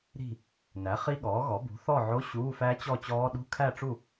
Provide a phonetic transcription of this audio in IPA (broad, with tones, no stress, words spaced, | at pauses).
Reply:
ɾi̤˥˨ | næ˩˥ χi˦˥ɠɔː˩˥ɣɔ˩˥ bṳ˩˥θɔ˥˨ʕo˧˥˧ ɕuː˧˥˧fæ˦˥t͡ɕɔ˥˨t͡ɕɔː˦˥ ɗṳ˧˥˧kʰæ˥˨ʈ͡ʂu˥˨